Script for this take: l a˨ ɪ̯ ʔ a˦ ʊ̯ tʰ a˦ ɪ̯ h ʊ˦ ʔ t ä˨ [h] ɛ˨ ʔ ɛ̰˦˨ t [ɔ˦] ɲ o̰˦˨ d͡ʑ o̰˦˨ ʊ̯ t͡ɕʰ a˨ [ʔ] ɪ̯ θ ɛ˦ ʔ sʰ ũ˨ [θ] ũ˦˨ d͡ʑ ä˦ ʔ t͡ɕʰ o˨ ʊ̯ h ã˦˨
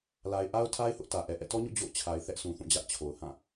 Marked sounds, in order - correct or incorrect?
incorrect, correct, incorrect, correct

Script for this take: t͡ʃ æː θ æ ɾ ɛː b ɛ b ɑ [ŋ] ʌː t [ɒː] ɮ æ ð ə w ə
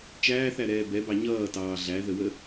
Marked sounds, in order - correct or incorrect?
incorrect, incorrect

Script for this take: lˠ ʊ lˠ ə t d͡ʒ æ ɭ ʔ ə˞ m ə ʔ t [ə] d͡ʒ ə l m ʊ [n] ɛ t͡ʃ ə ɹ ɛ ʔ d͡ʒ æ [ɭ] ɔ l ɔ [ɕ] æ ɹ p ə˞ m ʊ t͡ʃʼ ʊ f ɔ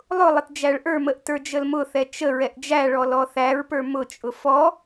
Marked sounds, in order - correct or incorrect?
incorrect, incorrect, correct, incorrect

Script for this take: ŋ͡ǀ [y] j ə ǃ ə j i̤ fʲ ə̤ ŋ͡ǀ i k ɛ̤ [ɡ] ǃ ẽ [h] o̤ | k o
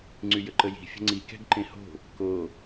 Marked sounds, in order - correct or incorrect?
correct, correct, correct

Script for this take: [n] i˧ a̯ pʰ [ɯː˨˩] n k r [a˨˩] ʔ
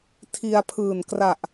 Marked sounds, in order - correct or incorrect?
incorrect, correct, correct

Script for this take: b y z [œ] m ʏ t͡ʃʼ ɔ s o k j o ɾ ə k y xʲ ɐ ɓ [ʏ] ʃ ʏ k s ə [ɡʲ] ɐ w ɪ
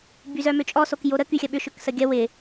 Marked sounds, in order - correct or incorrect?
correct, correct, correct

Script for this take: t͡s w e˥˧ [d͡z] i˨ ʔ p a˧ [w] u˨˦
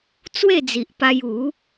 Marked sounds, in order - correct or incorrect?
correct, incorrect

